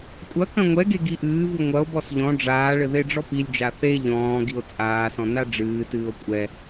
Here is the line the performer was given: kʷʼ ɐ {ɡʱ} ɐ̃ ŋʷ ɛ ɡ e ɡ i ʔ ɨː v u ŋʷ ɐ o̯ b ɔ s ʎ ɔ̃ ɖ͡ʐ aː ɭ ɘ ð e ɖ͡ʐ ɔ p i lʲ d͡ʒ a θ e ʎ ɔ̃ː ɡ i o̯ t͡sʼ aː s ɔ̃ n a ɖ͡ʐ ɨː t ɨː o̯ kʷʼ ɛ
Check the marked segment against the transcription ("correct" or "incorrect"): incorrect